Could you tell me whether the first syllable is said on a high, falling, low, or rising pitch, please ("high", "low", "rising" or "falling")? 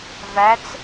rising